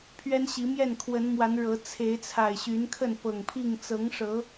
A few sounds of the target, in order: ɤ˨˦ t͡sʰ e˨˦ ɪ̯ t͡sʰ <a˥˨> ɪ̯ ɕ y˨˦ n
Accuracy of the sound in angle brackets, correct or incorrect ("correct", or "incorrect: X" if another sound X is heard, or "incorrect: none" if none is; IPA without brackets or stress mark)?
incorrect: a˨˩